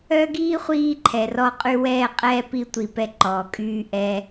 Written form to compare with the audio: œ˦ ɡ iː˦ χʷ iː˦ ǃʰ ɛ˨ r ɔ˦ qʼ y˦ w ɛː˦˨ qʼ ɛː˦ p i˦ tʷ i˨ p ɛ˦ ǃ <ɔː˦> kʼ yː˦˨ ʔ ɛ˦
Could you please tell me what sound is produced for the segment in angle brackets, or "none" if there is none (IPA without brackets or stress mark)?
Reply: ɔː˨